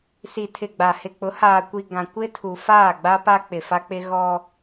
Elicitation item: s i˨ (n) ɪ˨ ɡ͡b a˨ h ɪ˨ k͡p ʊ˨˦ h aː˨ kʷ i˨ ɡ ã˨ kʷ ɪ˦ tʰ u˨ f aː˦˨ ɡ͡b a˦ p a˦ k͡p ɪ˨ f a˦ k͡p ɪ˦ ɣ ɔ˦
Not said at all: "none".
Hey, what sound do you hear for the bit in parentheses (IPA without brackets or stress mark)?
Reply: tʰ